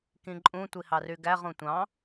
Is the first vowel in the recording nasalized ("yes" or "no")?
yes